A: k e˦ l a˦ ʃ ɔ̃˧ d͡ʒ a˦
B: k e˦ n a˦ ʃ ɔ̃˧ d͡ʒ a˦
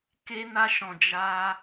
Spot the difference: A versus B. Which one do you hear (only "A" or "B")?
B